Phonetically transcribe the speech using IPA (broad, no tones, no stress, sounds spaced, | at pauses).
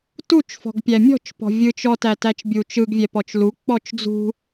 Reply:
t u t͡ʃ f ɔ̤ ɡ pʲ æ mʲ ɔ̤ t͡ʃ p ɔ̤ vʲ ɯ t͡ʃ ɔ t æ t æ t͡ʃ bʲ u t͡ʃ ɯ ɡ vʲ ɛ p ɔ t͡ʃ l u k͡p ɔ t͡ʃ d͡z ṳ